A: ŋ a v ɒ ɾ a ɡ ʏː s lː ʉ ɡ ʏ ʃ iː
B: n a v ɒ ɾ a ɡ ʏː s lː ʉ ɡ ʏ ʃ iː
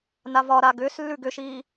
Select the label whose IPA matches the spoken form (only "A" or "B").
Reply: B